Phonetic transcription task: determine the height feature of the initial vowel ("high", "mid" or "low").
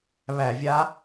low